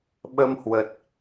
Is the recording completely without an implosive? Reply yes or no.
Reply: no